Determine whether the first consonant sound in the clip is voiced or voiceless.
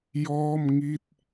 voiced